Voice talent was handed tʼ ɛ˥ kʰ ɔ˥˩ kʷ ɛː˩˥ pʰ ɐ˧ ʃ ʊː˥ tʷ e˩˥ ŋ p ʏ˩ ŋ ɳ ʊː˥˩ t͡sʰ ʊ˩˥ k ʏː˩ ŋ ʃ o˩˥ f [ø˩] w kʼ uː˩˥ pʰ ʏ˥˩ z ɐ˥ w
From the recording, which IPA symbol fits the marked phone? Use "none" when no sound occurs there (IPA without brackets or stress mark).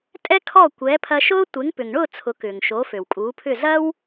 ø˩